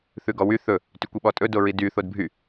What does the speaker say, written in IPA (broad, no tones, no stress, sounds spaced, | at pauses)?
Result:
θ ʉ ɡ ɔ w y θ ɵ | t y kʷ i ɓ ɔ tʼ ɵ d o ɹ i d y θ o d bʱ y